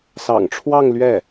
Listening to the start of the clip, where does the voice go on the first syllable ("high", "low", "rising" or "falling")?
low